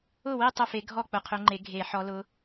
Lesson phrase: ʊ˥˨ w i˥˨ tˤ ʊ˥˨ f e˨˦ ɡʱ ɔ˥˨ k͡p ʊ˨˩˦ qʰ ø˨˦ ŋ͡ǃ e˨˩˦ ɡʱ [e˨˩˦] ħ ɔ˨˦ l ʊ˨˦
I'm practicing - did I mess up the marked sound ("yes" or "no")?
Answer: no